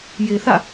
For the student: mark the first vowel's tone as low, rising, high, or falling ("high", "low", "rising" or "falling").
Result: low